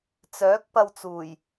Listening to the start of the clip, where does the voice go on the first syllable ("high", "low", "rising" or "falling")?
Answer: rising